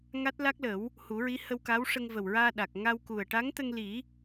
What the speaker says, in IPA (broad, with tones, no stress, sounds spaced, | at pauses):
ŋ a˦˥ t̚ l a˦˥ k̚ l ə˨˩˦ w | h u˨˩˦ ɹ i˧˥ h ə˧ w k a˧˥ w ʂ ə˧ ŋ v ə˨˩ w ɹ aː˧ ɗ a˨˩ k̚ ŋ a˧ w k u˨˩ ə̯ ʈ a˧˥ ŋ t̪ ə˧ ŋ l i˨˩˦